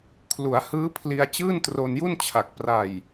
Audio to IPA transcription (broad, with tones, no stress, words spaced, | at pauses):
kʰlu˩˦a̯hɯː˦˥pʰli˧a̯ t͡ɕɯː˥˩ntro˧nju˥˩nt͡ɕʰa˨˩k̚ pra˨˩j